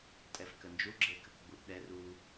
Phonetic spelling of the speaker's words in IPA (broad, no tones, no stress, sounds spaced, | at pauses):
tʼ ɛ f k ə n d͡ʒ u ɡ͡ǁ e k ə k ɡ͡b u ʔ ɗ ɛ r u